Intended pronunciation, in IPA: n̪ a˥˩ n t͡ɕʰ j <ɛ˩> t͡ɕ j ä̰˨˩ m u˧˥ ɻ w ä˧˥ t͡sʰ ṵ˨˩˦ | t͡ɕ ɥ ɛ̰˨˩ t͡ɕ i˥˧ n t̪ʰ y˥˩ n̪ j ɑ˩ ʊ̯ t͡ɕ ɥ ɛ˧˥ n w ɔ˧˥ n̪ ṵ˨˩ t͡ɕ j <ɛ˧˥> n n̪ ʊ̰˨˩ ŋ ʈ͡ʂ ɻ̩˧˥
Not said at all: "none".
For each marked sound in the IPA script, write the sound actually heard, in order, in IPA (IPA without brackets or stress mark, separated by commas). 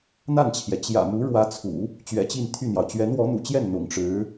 ɛ˩, ɛ˥˩